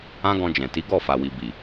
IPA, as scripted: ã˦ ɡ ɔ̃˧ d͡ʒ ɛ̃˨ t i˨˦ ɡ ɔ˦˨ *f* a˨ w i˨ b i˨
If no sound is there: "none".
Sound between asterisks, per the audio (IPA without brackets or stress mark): f